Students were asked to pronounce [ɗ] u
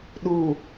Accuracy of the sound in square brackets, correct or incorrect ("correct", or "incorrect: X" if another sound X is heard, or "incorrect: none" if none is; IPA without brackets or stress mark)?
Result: correct